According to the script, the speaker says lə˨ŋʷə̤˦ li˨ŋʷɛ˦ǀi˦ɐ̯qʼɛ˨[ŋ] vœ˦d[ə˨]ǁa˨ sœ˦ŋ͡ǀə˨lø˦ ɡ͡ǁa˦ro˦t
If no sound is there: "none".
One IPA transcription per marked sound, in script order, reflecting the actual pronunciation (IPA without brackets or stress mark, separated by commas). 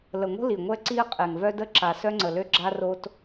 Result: ŋ, ə˦